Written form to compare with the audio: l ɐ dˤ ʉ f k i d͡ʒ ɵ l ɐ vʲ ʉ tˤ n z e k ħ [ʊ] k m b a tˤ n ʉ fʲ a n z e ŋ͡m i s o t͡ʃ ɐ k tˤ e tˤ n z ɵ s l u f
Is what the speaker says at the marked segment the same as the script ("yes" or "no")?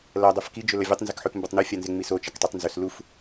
no